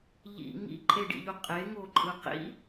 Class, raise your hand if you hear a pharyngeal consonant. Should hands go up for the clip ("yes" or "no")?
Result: no